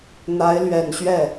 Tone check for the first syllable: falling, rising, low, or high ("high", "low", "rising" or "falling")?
rising